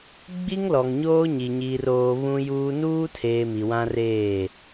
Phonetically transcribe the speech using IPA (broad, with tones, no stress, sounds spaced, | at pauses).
ɡ͡b i˦ ŋ l ɔ˨ ŋ ɲ oː˦ ɲ i˨ ɲ iː˨ r oː˨ β ũ˦ j uː˦ n uː˦ tʰ eː˨ m i˨ w ã˦ r eː˦˨